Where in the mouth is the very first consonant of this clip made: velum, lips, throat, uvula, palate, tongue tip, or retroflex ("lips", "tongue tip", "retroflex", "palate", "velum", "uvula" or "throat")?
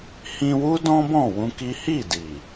throat